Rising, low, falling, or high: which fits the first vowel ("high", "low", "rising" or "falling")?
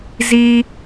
high